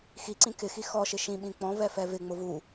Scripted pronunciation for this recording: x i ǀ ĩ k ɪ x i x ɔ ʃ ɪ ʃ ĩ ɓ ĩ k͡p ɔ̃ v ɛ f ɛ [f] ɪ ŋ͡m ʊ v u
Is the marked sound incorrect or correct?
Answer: incorrect